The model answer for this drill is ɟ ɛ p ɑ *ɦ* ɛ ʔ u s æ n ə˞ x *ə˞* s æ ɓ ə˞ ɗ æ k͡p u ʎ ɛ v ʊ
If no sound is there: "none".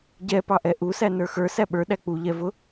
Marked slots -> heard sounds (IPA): ʔ, ə˞

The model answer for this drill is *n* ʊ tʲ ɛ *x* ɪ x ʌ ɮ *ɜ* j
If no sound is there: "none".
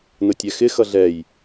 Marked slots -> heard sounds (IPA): n, x, ɛ

